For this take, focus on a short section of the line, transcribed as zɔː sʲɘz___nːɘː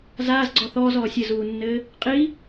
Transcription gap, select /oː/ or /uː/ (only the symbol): uː